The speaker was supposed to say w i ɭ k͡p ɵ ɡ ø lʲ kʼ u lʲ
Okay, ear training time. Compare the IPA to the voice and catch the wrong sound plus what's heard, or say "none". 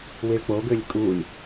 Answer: ɵ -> o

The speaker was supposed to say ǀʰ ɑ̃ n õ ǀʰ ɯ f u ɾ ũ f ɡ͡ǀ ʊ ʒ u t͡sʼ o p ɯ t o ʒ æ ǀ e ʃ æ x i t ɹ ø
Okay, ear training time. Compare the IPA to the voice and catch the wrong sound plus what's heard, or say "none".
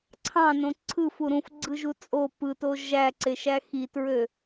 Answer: ʊ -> ɯ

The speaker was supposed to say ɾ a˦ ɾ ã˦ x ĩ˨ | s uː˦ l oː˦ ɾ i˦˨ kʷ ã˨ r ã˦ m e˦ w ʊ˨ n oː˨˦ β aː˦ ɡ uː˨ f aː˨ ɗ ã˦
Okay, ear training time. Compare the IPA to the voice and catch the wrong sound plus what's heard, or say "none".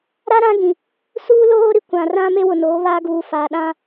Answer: x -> ɡ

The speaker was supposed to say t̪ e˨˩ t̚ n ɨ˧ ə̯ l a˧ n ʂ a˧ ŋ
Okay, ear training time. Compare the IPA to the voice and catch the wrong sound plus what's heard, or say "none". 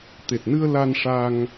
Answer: none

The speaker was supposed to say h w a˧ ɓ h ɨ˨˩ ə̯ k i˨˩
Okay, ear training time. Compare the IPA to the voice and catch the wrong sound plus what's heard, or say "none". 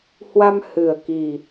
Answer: ɓ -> m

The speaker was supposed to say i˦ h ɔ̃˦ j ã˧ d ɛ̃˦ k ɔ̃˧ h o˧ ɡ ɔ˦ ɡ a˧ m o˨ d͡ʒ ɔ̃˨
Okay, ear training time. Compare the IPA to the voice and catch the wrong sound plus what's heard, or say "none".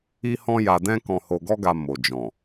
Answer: ã˧ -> a˧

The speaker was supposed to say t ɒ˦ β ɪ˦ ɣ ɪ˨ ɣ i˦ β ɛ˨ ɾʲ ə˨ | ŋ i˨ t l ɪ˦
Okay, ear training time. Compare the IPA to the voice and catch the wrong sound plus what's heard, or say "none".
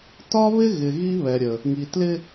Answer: none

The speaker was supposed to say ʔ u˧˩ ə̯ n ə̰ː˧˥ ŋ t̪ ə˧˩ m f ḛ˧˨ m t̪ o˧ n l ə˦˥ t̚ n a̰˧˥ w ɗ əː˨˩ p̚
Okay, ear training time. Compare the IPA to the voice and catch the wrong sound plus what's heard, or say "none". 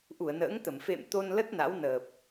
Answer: ɗ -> n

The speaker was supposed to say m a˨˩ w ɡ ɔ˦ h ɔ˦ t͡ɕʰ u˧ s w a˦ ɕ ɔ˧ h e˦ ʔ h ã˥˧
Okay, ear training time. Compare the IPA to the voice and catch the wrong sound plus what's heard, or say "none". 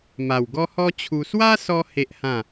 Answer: ɕ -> s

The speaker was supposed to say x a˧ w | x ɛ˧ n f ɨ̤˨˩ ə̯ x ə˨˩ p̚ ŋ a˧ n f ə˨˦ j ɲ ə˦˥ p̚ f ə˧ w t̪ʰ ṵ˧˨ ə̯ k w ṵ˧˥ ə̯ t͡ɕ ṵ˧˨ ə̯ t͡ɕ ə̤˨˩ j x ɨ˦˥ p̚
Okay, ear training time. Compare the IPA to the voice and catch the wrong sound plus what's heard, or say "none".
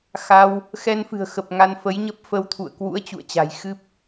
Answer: ə̤˨˩ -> a̤˨˩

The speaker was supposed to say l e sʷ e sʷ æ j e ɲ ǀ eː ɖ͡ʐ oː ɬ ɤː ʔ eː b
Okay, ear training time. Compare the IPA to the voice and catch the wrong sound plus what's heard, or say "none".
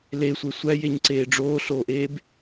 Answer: ɤː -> oː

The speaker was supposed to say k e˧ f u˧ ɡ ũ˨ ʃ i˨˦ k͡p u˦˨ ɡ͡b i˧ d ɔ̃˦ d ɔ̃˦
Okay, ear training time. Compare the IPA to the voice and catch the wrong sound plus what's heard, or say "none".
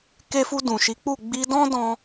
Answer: ɡ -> d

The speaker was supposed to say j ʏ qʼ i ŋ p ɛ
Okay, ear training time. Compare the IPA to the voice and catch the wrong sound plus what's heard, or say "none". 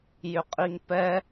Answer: none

